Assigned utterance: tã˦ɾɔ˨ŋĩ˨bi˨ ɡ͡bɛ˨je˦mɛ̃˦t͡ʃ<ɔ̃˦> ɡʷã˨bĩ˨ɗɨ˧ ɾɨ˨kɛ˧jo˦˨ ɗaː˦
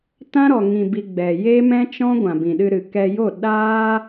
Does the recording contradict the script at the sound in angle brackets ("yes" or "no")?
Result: no